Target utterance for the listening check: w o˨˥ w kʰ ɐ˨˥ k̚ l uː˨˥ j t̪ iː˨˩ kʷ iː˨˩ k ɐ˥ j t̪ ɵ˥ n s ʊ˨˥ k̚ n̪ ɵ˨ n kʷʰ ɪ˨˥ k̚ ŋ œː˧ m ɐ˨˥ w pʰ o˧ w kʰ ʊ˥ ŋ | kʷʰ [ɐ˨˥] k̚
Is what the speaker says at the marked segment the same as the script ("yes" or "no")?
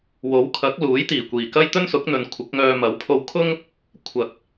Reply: no